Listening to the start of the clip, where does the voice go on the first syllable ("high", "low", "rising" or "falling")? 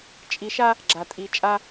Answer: rising